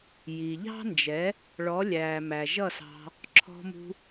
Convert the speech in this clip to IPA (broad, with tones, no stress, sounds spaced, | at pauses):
j i˨ ʎ ɑ̤˦ n d͡ʒ ɛ˨˦ | ɭ ɔ˨˦ lʲ æː˨ m æ˨ ʒ ʌ˦˨ s ɑ̤˧ | ǁʰ ɔ̤˧ m ṳ˧